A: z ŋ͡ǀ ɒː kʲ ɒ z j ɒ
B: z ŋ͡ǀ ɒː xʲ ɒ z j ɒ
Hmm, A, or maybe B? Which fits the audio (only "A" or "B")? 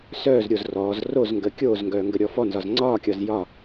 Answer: A